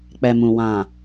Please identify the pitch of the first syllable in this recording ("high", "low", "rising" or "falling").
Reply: low